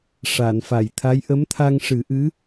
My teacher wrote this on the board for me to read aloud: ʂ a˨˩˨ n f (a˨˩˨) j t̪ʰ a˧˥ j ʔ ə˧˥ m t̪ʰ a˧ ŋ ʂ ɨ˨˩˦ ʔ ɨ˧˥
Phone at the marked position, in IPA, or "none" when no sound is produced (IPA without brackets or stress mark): a˨˩˨